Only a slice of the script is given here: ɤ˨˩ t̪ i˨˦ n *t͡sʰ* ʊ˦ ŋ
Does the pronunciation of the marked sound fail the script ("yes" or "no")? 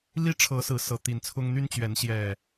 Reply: no